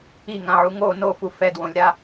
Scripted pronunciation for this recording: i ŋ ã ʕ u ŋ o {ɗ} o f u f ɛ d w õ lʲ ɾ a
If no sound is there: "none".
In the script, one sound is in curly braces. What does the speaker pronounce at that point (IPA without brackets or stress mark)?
n